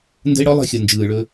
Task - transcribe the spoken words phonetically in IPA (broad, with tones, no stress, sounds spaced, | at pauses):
n d ə̤˦ ɪ̯ ɽ ɔ˦ lˠ ə̤˦˨ xʲ ɔ˨ n d͡ʒ ɯː˨ ɭ ɵ˧